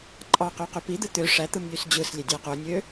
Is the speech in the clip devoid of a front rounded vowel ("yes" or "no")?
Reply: no